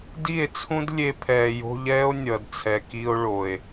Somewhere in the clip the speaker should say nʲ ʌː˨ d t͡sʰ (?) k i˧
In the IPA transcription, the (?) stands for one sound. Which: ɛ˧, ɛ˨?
ɛ˨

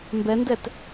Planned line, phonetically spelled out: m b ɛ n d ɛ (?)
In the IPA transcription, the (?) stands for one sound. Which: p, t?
t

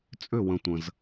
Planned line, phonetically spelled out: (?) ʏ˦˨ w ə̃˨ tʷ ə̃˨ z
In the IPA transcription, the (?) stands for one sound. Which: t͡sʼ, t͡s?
t͡sʼ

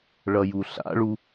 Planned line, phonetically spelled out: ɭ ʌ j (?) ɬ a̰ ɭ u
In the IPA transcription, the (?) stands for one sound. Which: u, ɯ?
u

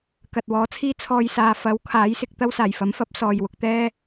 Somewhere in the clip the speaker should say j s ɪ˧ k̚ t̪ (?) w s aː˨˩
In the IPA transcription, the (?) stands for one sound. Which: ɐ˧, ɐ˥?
ɐ˥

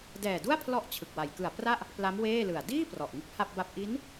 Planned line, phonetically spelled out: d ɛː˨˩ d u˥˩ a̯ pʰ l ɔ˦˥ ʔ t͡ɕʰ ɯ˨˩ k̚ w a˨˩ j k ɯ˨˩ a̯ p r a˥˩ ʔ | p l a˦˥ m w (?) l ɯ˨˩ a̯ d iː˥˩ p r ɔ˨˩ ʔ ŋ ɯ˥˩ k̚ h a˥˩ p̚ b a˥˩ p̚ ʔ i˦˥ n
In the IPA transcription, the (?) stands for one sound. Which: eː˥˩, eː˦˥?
eː˥˩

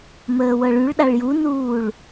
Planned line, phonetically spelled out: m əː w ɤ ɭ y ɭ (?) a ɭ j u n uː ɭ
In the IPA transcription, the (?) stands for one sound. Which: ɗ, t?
ɗ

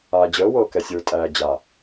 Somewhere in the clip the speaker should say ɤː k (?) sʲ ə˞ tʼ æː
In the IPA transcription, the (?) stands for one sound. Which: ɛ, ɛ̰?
ɛ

